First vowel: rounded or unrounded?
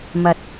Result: unrounded